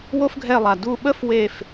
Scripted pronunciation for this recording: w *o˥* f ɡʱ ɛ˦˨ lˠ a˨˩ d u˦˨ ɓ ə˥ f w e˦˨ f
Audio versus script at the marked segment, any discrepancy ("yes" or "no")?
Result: no